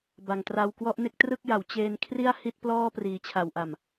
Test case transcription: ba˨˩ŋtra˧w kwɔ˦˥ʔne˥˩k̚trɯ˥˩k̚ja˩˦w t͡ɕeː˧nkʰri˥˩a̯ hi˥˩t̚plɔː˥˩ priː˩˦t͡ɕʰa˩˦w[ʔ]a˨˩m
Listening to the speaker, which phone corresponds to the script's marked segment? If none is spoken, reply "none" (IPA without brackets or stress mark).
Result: ʔ